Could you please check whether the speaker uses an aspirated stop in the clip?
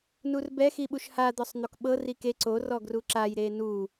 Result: no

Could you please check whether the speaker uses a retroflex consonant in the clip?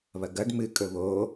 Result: yes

